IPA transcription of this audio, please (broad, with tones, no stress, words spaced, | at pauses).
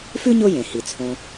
fʉ˥ɲo˦jẽ˩ hi˩t͡sʰõ˨